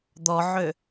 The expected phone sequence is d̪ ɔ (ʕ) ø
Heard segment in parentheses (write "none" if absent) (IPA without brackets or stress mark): ʕ